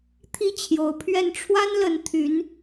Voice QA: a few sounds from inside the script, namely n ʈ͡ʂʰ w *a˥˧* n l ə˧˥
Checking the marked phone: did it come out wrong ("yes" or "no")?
yes